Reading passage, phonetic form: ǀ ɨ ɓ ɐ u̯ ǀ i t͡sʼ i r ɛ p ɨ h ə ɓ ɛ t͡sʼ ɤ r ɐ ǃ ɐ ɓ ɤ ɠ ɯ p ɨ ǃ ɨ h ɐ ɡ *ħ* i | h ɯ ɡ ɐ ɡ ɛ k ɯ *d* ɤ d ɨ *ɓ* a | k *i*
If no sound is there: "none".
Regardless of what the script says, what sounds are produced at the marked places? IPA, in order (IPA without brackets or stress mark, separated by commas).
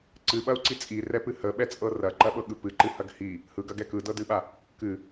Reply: h, d, ɓ, ɨ